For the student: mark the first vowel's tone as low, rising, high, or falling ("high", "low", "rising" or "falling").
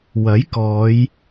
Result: rising